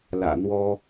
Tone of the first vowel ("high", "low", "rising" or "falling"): low